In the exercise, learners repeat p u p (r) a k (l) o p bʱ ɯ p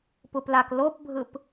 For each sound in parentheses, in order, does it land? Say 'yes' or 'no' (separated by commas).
no, yes